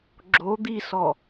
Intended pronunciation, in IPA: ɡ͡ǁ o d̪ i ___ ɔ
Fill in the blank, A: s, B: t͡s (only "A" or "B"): A